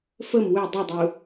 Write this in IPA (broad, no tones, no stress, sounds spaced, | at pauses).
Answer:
f ə m w ø dˤ u dˤ u